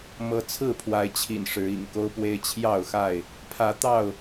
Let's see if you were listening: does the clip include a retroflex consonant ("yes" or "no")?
yes